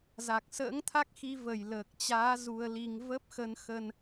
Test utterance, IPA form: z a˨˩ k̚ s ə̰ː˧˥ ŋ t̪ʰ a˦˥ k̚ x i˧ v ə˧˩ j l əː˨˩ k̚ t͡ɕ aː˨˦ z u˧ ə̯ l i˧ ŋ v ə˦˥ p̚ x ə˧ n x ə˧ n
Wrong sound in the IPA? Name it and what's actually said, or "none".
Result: none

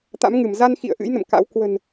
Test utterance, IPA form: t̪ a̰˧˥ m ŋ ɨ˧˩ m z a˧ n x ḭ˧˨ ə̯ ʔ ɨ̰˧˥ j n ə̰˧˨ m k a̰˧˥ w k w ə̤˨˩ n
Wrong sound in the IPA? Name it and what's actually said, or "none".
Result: none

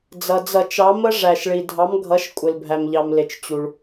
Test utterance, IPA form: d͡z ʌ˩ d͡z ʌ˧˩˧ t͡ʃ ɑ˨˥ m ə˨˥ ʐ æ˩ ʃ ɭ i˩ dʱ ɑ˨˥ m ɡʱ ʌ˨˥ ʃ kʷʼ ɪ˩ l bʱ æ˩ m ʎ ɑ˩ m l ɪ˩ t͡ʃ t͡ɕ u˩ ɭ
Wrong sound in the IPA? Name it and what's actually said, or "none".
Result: none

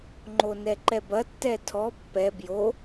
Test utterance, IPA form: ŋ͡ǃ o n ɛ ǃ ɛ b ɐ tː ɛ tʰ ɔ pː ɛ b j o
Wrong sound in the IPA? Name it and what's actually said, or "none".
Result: none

